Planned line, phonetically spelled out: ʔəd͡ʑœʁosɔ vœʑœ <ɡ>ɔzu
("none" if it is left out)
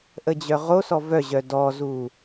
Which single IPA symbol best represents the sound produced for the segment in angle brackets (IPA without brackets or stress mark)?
d